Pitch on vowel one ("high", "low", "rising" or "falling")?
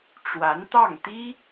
rising